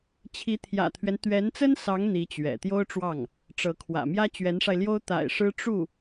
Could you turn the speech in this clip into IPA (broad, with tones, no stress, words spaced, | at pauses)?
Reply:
t͡ɕʰi˧˥t̪ʰjä̰˨˩t̪ʰɥɛ˦n t̪ɥɛ˧˥nt͡sə˥nsɑ˧˥ŋ n̪i˧˥t͡ɕɥɛ̰˨˩ t̪jo˥ʊ̯ʈ͡ʂwɑ˥˩ŋ | ʈ͡ʂɤ˧˥kʰwä̰˨˩ mjä˥t͡ɕɥɛ˧˥nʂa˧ɪ̯ljo˥ʊ̯ t̪a̰˨˩ɪ̯ʂɻ̩˥ ʈ͡ʂu˥˩